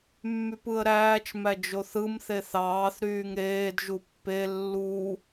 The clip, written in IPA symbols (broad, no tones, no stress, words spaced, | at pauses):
mːypɯə̯ɾæːt͡ʃ mæd͡ʒoθɯm θeθɑːθ ɾyːŋɾeːd ʒupːe lːu